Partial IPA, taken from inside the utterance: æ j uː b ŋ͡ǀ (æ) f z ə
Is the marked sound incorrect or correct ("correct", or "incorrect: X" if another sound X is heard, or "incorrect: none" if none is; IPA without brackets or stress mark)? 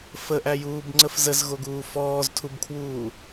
incorrect: ə